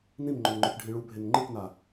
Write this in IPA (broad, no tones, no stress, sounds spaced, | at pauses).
n ĩ m ŋ͡ǃ ɵ n ŋ͡ǃ ɵ k ɖʱ ĩ ɭ u bʱ e n ŋ͡ǃ ɨ k n a